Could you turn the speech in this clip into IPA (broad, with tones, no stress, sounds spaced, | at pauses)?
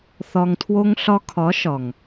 θ ɒ˨ ŋ tʰ w o˧ ŋ ɬ ɒ˧ kʰ ɒ˨˦ ʃ ɒ˨ ŋ